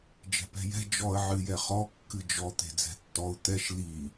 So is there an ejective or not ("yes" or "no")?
no